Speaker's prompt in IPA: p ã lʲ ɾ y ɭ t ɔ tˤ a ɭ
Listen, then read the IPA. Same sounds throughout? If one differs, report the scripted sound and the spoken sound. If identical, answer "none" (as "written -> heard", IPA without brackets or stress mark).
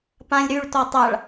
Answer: none